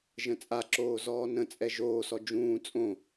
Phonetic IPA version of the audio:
ʒ ə̃ t͡sʼ a ǁ oː z ɔː n ə̃ t͡sʼ ɛ ʒ oː s ɔ d͡ʒ ũː t͡sʼ õ

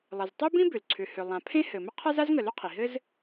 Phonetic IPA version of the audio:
lˠ ɘ˩ z tˤ ɘ˥ b ĩ˥ b ʏ˩ l ǀʰ ʏ˩ h ʏ˩ lˠ ã˩ pʰ ẽ˥ h ɘ˩ m ə˥ qʰ a˥ z a˥ z ŋ ə˩ l ʏ˥ qʰ i˩ ɦ ɘ˥ z

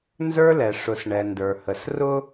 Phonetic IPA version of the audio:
n z ə˞˦ l ɛ˨ ʂ ʊ˨ s ɳ ɛ˨ n d ə˞˨ h ə˨ s r ʊ˦

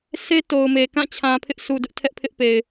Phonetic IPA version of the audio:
sʰ e˦ t o˨ ʊ̯ m e˨ k ã˦˨ t͡ɕʰ ã˨ pʰ ɪ˦ ʔ sʰ u˨ d ʊ˦ ʔ tʰ ɛ˦ ʔ pʰ ɪ˦ ʔ p e˨ ɪ̯

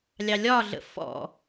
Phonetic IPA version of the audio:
lʲ ɑ lʲ ɒ ɮ ə̰ f ɔ̰

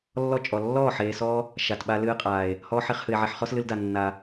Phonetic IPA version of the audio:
lː ɔ˦ t͡ʃʼ ɔ˨ lː ɔː˦˨ ħ eː˨ s ɔː˧ | ʃ a˨ t ɓ a˧ l ɨː˦ qʼ aː˨ e̯ | h ɔː˦ ħ e˦ χ h ɨ˨ e̯ ʕ e˧ ħ χ ɔ˦ s l ɨ˧ l d a˨ nː a˨

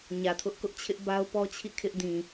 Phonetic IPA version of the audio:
ɲ ä˨ tʰ ʊ˦ ʔ k ʊ˦ ʔ t͡ɕʰ ɪ˦ ʔ b a˦ ʊ̯ p ɔ˦ t͡ɕʰ ḭ˦˨ kʰ ɪ˦ ʔ d ĩ˨

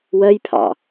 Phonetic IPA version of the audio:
w ɜ j pʰ ɑ̰

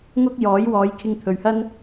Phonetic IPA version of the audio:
ŋ ʊ˥ k̚ j ɔː˨˥ j w ɔː˨˧ j kʰ ɪ˧ ŋ t̪ʰ ɵ˨ ɥ h ɐ˥ n

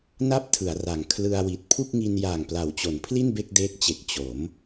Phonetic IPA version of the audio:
n a˥˩ p̚ tʰ ɯ˩˦ a̯ r a˩˦ ŋ kʰ l ɯ˧ a̯ w i˨˩ t̚ pʰ u˥˩ k̚ ŋ i˧ n j aː˨˩ ŋ p l a˩˦ w t͡ɕ o˩˦ n pʰ l i˥˩ n b e˥˩ k̚ d eː˦˥ k̚ t͡ɕ e˨˩ k̚ t͡ɕ o˩˦ m

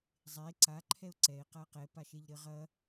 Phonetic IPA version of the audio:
zˤ e ǀ a ǃʰ ɛ ʊ̯ ǀ ɛ ɪ̯ q a q ɛ p a ʃ e ʎ ɾ ɘ ʁ ɐ

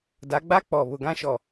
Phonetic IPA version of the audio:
d a˨˦ ɡ͡b a˦ k͡p ɔ˨ β ʊ˨ ɡ ã˦ ʃ ɔ˨

